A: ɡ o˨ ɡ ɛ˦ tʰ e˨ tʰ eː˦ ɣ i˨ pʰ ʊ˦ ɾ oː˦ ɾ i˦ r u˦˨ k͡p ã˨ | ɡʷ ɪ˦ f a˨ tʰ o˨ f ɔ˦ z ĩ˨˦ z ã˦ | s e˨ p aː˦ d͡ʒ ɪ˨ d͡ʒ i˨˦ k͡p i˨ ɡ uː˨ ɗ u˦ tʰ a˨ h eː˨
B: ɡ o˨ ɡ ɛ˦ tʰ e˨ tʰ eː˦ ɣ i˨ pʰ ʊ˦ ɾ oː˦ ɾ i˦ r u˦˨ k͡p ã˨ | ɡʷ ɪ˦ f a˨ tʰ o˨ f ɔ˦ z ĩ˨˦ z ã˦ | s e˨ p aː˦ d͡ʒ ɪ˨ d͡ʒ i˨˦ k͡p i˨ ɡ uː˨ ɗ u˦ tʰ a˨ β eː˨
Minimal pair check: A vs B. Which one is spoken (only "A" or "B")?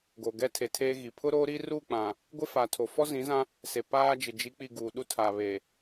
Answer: B